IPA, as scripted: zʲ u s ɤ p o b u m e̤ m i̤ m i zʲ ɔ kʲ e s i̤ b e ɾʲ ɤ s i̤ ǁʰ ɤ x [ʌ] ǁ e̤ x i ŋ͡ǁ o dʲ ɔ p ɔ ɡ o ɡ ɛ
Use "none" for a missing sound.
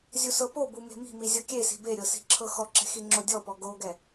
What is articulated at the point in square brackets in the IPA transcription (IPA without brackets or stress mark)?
ɔ